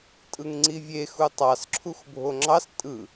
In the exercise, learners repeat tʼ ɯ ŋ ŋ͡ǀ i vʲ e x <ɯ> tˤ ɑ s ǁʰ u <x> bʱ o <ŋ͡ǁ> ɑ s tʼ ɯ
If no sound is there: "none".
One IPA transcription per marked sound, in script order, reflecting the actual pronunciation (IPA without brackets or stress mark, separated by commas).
u, x, ŋ͡ǁ